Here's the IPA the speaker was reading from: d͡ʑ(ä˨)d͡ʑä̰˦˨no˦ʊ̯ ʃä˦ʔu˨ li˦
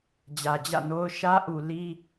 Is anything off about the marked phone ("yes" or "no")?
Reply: no